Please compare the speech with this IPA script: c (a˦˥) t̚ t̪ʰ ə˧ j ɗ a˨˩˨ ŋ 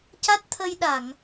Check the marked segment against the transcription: correct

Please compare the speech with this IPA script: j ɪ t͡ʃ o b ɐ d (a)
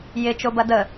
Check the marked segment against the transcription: incorrect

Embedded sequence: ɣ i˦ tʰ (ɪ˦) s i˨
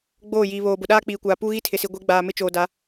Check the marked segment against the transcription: incorrect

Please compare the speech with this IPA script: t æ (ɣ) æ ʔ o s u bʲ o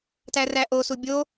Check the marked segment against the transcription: incorrect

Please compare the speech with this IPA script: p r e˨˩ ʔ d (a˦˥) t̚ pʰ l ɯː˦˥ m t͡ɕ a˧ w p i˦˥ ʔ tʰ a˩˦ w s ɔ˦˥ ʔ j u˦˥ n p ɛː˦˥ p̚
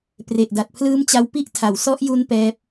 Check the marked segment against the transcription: incorrect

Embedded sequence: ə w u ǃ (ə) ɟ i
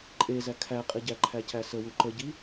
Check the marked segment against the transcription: correct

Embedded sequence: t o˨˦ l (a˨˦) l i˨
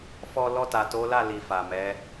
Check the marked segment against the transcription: incorrect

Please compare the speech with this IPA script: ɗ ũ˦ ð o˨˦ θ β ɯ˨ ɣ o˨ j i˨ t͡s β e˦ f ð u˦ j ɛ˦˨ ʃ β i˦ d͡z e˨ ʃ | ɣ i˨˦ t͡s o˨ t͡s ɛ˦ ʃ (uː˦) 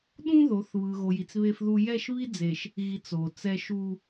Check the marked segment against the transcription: incorrect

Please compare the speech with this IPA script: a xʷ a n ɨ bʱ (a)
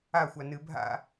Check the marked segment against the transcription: incorrect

